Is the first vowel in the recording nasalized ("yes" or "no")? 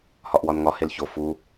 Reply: no